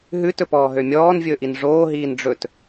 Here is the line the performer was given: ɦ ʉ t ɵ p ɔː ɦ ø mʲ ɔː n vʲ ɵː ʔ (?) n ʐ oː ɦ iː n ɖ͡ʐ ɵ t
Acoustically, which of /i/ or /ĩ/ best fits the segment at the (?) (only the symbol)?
i